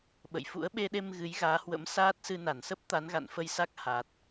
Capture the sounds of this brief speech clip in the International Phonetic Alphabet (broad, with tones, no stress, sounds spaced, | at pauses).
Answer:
ɓ ə̰˧˨ j f ṵ˧˥ ə̯ ɓ e˧ ɗ e˧ m ɣ ɨ˨˦ j ɣ aː˨˦ h w ə̰˧˥ m s aː˦˥ t̚ s ɨ˧ n a˧˩ n s ə˦˥ p̚ t̪ a˨˦ n ɣ a̰˧˨ n f ə˧ j s a˦˥ k̚ h a˨˩ t̚